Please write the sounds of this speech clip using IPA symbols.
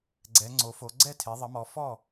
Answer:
ɡ͡ǀɛ˩˧ŋ͡ǀo˩˧fo˩˧ ɡ͡ǀɛ˥˩tʰe˩˧ðˤə˩˧mɔ˩˧ fɔ˥˩

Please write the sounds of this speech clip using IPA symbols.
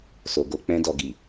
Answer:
so˨ɡo˧ k͡pɛ̃˦ dɔ˧ɡi˨

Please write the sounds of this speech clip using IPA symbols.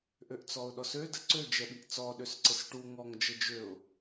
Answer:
ʔøʔt͡sɔʊ̯ɗɔsø dəǀø d͡ʒɛɓiʔt͡sɔ ɗøsǀɘsʈu ŋɔŋ d͡ʒəd͡ʒøʊ̯

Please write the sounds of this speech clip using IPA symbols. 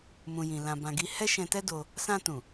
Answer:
mũ˨jĩ˨ lã˨bã˨ɡi˧ hɛ˦ʃɛ̃˧tɛ˦ do˧ | sã˧tũ˨

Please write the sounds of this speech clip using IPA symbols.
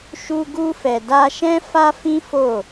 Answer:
ʃu˧ ɡu˧fɛ˨da˧ ʃɛ̃˦ fa˦fĩ˦ fo˦˨

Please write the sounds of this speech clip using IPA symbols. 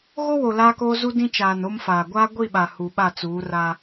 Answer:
ɣo˦wo˨ laː˦koː˦zu˦ dĩ˦t͡ʃaː˨no˦mfaː˨ ɡʷaː˦ɡʷi˦˨ɓa˨ hu˨ɓa˦˨t͡suː˨˦ ra˦

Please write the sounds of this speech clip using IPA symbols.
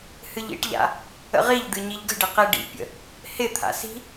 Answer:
hɨʎḭʈʎa̰ | ə̰ʁiʎd̪ɨ ɲiʎɡə̤ɖɪ qiɖḭpʲə̰ | hɪt̪ʰa̰ si̤

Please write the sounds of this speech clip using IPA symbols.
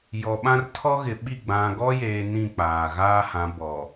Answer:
jɔ˨ɓã˦r tʰɔ˦ɣɪ˨ɓi˦˨ ɡ͡bã˨ɡɔ˦jeː˨ nĩ˦˨k͡paː˨ ɣaː˦hã˨˦ bɔ˨

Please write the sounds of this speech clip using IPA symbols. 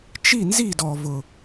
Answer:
t͡ʃi˥˧nzi˥˧dɔ˧vʊ˧

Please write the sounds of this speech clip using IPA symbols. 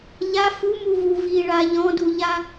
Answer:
ʎa fumuvu viɭa ʎɔ̃duʎa

